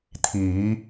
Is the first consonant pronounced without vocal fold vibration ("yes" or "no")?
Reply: yes